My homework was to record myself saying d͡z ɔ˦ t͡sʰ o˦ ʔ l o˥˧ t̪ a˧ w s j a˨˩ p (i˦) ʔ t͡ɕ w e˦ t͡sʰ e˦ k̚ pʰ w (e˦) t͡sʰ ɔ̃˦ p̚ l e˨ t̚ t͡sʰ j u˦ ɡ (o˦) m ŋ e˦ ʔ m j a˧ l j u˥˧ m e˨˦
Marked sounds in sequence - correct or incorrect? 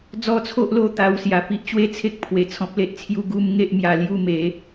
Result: correct, incorrect: e˨˩, incorrect: u˦

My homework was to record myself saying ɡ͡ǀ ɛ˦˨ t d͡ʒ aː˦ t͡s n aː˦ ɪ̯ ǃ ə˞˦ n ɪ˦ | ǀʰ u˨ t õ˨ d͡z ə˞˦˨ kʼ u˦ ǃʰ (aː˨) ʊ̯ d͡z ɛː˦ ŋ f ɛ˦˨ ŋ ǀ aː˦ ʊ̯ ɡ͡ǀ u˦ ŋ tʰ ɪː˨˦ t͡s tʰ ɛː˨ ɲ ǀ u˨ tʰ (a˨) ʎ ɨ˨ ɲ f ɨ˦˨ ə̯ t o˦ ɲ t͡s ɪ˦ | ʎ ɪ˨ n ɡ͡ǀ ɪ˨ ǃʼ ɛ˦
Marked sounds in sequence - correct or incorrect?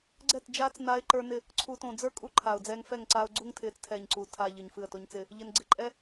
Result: correct, correct

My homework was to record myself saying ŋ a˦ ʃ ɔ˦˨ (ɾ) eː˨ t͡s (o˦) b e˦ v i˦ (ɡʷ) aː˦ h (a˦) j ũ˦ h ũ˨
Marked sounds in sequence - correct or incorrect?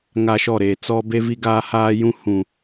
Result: correct, incorrect: ɔ˦, incorrect: ɡ, incorrect: aː˦

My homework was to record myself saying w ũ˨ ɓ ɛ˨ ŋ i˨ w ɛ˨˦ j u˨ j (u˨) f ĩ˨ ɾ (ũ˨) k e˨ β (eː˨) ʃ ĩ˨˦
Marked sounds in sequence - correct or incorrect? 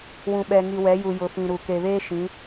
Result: incorrect: ʊ˨, incorrect: u˨, incorrect: eː˦

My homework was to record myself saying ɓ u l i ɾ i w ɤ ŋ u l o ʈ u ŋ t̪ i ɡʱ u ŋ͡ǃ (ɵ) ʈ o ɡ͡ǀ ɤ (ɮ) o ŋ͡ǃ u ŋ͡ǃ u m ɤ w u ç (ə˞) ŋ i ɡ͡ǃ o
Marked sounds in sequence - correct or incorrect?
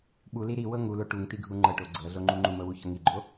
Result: incorrect: ɤ, correct, incorrect: ɤ

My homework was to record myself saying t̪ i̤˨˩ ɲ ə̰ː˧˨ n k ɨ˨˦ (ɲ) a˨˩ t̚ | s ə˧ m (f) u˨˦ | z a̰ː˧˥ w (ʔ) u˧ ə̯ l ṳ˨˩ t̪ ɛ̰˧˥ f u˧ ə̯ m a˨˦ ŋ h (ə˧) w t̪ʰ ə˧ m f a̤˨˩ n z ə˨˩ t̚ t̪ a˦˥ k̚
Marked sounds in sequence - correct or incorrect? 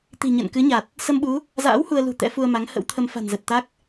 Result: correct, incorrect: ɓ, incorrect: h, incorrect: ə̰˧˥

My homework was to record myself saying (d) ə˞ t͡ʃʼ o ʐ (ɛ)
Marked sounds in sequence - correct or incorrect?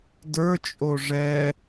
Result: correct, correct

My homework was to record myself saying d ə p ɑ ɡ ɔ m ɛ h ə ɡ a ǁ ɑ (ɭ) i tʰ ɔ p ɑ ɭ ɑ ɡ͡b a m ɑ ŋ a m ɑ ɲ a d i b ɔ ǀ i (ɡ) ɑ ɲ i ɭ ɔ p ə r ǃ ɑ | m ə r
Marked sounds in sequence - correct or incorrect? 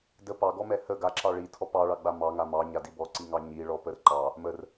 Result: correct, incorrect: ŋ

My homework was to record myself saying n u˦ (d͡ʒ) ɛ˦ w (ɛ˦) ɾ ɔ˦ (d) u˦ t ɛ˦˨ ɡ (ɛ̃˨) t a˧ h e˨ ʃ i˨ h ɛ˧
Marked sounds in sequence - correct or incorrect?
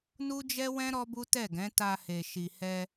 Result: correct, incorrect: ɛ̃˦, incorrect: b, incorrect: ɛ̃˨˦

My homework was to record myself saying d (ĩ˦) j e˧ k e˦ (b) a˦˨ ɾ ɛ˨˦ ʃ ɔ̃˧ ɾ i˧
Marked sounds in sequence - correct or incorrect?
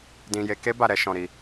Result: incorrect: ĩ˧, correct

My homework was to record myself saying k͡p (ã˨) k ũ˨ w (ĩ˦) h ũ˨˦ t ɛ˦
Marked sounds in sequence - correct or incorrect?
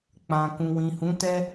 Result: correct, incorrect: ĩ˨

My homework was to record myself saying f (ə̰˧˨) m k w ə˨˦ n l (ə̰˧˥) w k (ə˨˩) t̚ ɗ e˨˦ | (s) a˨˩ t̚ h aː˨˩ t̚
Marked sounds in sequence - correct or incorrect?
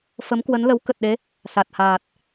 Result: incorrect: ə˨˦, incorrect: ə˨˦, correct, correct

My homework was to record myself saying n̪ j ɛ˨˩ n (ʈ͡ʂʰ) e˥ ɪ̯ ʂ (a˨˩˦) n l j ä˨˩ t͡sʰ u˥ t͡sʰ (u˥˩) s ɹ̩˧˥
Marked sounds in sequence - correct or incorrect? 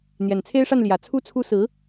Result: incorrect: t͡sʰ, incorrect: a˥˩, incorrect: u˥

